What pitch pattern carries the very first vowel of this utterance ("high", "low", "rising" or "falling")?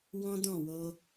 high